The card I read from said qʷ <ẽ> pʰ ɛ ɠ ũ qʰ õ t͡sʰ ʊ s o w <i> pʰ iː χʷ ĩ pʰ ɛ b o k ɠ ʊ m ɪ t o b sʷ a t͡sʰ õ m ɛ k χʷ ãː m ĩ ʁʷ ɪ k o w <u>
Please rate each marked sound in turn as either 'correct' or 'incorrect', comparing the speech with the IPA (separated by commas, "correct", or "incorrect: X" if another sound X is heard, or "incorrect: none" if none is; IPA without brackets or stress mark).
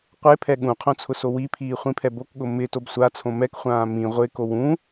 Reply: incorrect: e, correct, incorrect: ũ